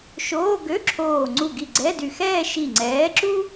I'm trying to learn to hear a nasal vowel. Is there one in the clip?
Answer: no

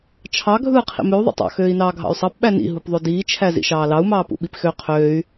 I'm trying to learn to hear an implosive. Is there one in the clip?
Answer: yes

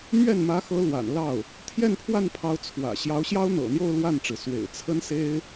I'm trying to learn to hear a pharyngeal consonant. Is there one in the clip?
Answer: no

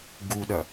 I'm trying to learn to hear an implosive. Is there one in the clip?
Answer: yes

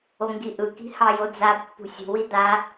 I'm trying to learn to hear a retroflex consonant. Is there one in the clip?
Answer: no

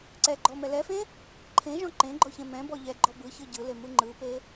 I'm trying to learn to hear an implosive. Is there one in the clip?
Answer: no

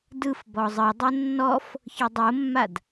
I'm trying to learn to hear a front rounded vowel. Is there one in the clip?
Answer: no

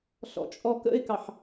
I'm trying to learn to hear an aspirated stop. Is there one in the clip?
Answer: no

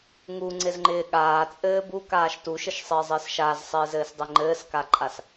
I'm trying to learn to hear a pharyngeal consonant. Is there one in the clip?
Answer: no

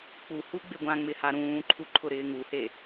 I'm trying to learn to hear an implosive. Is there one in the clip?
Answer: no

